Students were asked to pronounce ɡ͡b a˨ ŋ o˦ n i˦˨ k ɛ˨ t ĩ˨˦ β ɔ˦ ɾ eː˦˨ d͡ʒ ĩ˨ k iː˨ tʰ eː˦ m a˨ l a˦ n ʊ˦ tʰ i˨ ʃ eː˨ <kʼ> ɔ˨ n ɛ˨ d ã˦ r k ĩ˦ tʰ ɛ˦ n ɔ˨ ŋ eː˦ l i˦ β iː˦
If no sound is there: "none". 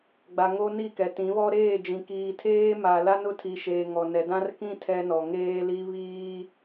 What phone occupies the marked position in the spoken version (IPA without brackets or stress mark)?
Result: ŋ